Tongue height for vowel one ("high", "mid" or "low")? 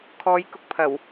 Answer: mid